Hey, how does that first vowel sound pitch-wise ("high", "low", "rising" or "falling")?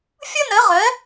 high